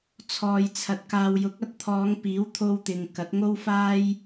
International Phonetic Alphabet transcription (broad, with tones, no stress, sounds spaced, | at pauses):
t͡sʰ ɔː˨ j t͡sʰ ɐ˨˥ t̚ k aː˨ w j ʊ˨˥ k̚ ɐ˧ t̚ t̪ʰ ɔː˨˧ ŋ p iː˨˥ w t̪ʰ o˧ w t̪ ɪ˨ ŋ k ɐ˨˥ t̚ ŋ o˥ w f aː˥ j